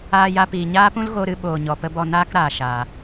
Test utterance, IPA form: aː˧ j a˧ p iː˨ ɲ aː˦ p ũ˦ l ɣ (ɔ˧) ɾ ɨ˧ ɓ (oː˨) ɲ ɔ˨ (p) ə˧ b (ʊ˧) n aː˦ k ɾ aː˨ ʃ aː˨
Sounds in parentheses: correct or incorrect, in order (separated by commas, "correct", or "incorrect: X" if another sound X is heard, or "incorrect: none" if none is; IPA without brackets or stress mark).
incorrect: o˧, correct, correct, incorrect: ɔ˧